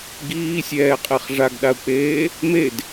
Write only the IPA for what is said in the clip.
ɡiːsʲɛːqʼeχ ʐaɡɗau̯k͡peː | med

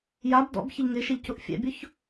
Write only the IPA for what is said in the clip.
jab dɔ̰b çɪʎŋɪʃeʎ cʊʔfʲɛ̰bʲʊç

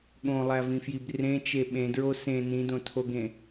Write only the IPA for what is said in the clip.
ɠõlˠævĩfjib rẽt͡ʃe ɓẽdɹo sẽ nĩdõtʰoɡẽ

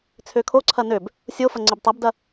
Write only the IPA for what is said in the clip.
t͡sʰøkʰoǀʰɐ nøb | sʲofɐ ŋ͡ǀɪbtˤɐbdɐ

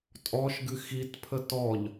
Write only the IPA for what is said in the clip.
tʼɔʃɡɨ xitpʰə tɔʎ

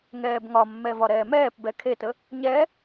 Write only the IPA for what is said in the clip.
ŋɛːbŋɒmːɛ vɒɾɛːmɛːpbɛ kʰetə | ɲɛ

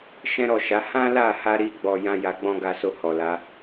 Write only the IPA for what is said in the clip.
ʃɛ̃˦ɾɔ˦˨ʃa˨˦ hã˦la˦˨ha˧ɾi˧ ɡ͡bɔ˧jã˦ja˧ ɡ͡bɔ̃˧ ɡa˦so˦˨ hɔ˨la˨˦

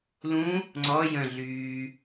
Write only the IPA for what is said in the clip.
lũ | ŋ͡ǀɔ jə̃ɮyː

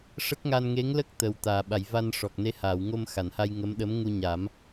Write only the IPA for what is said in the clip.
ʂə˦˥k̚ŋa˧n ŋe˧˥ŋlə˦˥k̚ t̪ə˨˩w t̪aː˨˩˨ɓa˨˩˨jva˧n ʂɔ˨˩k̚ne˧˥haː˨˩˨wŋo˧m xa˨˩˨nha˧jŋə˧˥mɗə˧˥m ŋu˧ɲa˨˩˦m

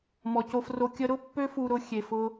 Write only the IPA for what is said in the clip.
mɔ˨co˧fro˧ kʲə˧ɾʊ˦ pːø˦fu˧ɾʊ˧ xʲe˨fʊ˧

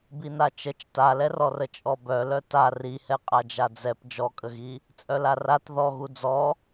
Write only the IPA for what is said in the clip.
binat͡ʃət͡ʃ talɛrɔrə t͡ʃʼɔbœlœ ta rihɛqʼa d͡ʒad͡zɛp d͡ʒɔkʼəɣi | t͡sʼœlarat ðɔɣu d͡zɔ

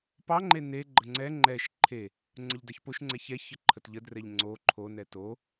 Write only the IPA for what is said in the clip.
pɑŋ͡ǃe neɡ͡ǃə ŋ͡ǀɛ ŋ͡ǃɛʃ ǃʰe | ŋ͡ǀəʎdɑçpoʃŋ͡ǀɛ çɛ çəǃʰətʎədrɛʎ ŋ͡ǀo ǃʰonɛ to

